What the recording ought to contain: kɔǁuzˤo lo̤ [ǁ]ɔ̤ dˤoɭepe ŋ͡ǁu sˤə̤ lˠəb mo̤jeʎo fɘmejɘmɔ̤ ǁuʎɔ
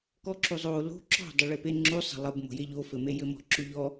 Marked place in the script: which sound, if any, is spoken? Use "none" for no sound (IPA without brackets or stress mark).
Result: ǁ